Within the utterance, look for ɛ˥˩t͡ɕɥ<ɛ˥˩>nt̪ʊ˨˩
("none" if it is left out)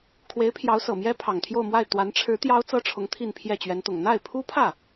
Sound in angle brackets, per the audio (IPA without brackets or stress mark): ɛ˧˥